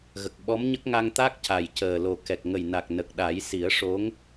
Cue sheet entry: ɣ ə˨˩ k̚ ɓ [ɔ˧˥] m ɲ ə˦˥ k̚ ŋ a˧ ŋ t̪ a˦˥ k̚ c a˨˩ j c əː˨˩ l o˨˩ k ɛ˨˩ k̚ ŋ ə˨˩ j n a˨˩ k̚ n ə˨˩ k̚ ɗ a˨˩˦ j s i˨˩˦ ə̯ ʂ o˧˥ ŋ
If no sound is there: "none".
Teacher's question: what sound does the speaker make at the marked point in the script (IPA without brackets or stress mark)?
ɔ˧˥